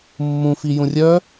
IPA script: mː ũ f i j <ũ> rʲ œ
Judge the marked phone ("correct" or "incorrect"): correct